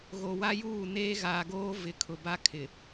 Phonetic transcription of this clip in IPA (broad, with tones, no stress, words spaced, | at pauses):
ɣo˨wa˦juː˦˨ neː˦ɣaː˨ɡoː˦ vɪ˨˦kʰʊ˨ba˦kʰɪ˨